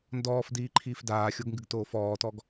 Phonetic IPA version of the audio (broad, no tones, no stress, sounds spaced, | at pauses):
n d ɔː f d iː ǃʰ iː f d aː xʲ o ɡ ŋ ɡ ɨ ɡ t oː f ɔː t ɔ ɡ